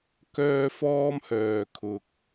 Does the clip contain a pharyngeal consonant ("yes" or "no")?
no